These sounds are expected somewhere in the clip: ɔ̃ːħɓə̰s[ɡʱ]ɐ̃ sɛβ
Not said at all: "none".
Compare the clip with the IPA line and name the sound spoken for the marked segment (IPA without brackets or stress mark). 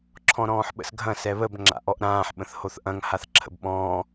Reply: ɡʱ